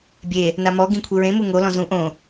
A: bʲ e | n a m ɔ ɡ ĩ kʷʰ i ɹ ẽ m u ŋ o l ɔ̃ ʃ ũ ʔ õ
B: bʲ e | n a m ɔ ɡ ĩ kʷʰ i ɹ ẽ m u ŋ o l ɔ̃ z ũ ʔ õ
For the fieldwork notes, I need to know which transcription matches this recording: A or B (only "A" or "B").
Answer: B